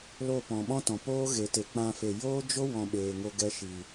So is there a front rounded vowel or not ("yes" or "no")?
no